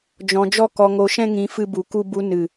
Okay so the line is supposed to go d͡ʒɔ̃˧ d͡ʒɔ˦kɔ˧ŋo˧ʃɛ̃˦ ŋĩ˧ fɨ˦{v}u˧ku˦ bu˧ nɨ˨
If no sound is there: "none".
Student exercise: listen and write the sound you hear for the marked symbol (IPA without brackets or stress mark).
b